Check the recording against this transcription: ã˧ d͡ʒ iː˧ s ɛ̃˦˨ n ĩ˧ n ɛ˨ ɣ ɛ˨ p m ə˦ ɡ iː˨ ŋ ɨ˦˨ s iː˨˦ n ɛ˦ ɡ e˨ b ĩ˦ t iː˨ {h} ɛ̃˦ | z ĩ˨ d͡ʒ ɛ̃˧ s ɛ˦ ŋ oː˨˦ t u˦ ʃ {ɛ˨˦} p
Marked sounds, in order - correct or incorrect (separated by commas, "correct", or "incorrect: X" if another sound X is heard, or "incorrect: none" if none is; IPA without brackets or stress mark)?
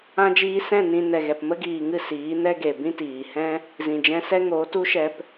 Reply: correct, incorrect: ɛ˧